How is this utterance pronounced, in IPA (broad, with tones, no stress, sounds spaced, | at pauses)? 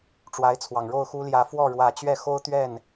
ʈ͡ʂ w a˧˥ ɪ̯ t͡sʰ w ɑ˨˩ ŋ ɻ o˥˩ ʊ̯ x u˥ l j ä˧˥ f w ɔ˥˩ ɻ w ä˨˩ t͡ɕ ɥ ɛ˥˩ x o˥ ʊ̯ t̪ ɥ ɛ˥˩ n